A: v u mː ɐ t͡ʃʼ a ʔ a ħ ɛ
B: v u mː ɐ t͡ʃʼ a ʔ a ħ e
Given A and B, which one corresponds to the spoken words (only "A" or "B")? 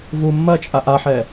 A